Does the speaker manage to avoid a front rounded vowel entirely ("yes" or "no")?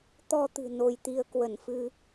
yes